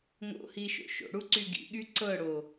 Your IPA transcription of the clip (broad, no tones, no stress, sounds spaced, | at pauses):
ŋ o̰ h i ʃ o̰ ʃ o̰ ɽ u ǀ y ɡ ḭ ɠ y ǀ ɤ ɽ o